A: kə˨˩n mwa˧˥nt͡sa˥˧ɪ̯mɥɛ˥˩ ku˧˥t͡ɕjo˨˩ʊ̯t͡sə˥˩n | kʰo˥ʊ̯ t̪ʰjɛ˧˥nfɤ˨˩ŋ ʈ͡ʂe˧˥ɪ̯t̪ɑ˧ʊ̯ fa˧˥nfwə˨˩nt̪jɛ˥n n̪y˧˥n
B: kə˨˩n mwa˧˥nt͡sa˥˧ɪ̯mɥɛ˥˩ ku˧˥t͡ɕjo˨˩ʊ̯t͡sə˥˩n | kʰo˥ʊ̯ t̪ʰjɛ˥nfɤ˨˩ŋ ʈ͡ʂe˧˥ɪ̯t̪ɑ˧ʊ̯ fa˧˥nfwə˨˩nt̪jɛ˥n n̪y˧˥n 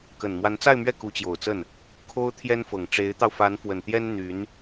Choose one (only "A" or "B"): B